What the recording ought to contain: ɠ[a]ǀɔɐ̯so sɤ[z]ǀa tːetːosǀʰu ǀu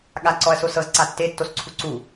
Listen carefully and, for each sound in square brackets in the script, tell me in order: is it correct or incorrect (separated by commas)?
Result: correct, correct